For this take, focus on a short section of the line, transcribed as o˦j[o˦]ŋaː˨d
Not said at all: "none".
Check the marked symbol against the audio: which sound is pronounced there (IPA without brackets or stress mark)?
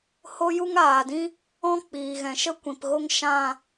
u˦